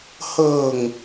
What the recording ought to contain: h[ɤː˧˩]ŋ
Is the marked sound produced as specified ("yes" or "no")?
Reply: yes